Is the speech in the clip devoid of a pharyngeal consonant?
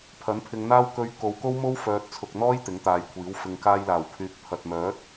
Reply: yes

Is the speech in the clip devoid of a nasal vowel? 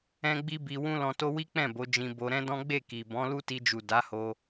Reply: no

